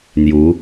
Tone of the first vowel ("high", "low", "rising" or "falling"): rising